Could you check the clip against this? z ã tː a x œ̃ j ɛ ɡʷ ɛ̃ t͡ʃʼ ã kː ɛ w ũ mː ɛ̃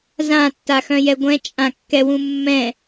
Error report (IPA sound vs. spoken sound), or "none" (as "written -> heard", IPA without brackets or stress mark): none